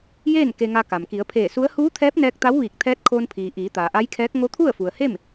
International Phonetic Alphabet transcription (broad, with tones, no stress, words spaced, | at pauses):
jeː˥˨n ke˧ŋa˧ka˩m ki˩˧ə̯pʰeː˧˩su˧˥ə̯ huː˧˥t̪ʰɛː˧˥p̚ nɛː˧k̚t̪a˧˥w ʋiː˧˩k̚t̪ʰɛː˧˥t̚kʰoː˧npʰiː˩ ʔiː˩˧t̪aː˩ʔa˧˥jkʰɛː˧˥k̚ ŋo˧˥t̪ʰu˥˨ə̯fu˩ə̯he˥˨m